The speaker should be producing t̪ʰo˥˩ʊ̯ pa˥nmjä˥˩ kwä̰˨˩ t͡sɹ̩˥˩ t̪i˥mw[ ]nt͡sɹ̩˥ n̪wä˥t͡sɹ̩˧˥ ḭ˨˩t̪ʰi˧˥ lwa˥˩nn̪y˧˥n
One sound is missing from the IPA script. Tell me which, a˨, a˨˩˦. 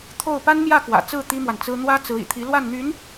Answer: a˨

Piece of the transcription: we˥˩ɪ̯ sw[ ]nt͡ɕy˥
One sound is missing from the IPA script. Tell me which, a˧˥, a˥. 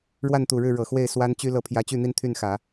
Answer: a˥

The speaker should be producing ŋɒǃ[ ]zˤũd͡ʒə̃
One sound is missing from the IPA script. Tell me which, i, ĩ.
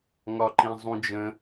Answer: ĩ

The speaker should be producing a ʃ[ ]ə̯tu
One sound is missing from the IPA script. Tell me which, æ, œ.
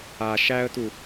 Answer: æ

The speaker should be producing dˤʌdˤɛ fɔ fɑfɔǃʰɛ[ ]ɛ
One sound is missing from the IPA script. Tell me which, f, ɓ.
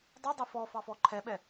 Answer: ɓ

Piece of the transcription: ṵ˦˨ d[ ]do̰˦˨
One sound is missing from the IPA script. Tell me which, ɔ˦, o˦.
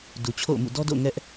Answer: ɔ˦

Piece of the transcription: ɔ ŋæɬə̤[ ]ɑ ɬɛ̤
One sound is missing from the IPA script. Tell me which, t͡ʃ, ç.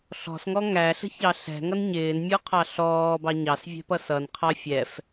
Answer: ç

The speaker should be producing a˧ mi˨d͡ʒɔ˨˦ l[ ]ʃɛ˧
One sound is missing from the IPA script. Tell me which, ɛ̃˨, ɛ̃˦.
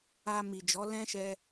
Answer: ɛ̃˦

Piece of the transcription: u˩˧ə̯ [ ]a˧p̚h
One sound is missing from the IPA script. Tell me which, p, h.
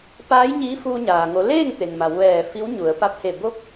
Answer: p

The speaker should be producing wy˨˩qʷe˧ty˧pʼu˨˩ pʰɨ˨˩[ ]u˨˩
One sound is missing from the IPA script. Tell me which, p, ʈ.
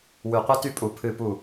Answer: p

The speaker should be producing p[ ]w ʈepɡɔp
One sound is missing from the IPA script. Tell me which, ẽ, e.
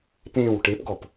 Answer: ẽ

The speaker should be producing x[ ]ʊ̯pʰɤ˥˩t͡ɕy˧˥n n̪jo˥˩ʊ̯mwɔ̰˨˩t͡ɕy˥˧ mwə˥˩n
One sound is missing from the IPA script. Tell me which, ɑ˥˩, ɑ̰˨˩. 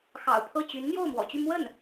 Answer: ɑ̰˨˩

